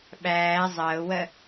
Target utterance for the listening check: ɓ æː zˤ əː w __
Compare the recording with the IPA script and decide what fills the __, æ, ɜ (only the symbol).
ɜ